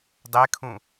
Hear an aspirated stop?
yes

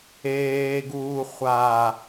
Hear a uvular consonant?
yes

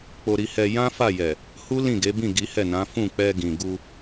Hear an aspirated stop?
no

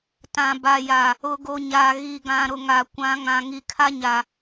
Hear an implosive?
no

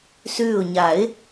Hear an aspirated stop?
no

